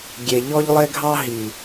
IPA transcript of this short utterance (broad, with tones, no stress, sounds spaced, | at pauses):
ɡʲ e˨ ʎ ɔ˦ ʎ lˠ e˦ ɡʱ ɑ˦ ɦ i˨